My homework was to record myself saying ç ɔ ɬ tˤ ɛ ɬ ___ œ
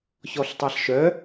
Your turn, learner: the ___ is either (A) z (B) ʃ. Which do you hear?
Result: B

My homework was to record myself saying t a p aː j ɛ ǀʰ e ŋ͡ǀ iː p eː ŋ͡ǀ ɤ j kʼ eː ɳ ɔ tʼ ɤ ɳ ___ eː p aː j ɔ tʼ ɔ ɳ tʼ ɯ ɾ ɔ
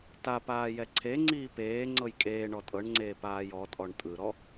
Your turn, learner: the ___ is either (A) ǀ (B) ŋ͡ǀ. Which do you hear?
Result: B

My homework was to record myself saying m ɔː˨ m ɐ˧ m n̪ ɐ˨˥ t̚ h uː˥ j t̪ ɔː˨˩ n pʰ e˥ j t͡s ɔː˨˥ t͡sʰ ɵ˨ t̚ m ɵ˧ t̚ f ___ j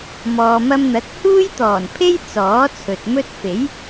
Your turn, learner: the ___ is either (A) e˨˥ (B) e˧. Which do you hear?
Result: A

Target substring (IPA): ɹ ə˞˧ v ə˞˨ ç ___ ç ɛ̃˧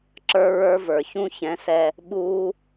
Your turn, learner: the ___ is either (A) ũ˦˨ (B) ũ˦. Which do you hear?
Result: B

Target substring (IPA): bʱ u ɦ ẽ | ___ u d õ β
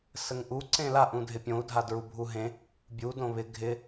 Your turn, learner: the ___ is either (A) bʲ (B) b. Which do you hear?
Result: A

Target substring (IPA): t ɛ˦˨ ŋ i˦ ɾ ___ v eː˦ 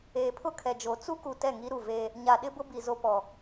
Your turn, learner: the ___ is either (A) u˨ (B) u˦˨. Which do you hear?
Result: B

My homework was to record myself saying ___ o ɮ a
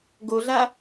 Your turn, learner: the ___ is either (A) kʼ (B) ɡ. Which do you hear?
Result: B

